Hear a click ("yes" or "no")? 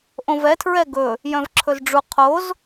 yes